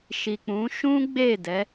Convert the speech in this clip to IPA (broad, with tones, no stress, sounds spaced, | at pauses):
ʃ i˨ k͡p ũ˨˦ ʃ ũ˦ ɡ͡b e˦˨ d ɛ˨˦